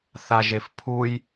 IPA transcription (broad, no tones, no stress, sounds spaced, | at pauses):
θ a ʒ e f pʰ u j